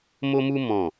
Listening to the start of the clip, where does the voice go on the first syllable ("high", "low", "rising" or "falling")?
high